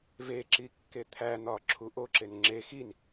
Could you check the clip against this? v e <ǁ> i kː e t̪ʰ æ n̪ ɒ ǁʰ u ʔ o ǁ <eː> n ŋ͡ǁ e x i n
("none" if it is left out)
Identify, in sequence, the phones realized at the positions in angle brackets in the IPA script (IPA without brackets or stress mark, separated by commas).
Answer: ǁ, e